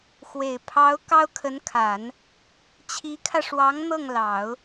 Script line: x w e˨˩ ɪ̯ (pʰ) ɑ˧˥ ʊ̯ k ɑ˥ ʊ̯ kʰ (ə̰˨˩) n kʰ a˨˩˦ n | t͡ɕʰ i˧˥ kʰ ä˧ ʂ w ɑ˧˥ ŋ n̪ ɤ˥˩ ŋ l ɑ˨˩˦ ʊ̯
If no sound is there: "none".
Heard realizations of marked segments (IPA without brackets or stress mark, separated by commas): pʰ, ə˧˥